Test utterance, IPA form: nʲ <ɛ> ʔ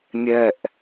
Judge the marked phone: correct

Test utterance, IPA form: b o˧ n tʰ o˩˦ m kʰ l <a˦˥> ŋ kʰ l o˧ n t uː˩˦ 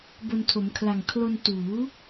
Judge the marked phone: incorrect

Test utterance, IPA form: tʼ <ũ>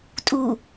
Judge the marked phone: incorrect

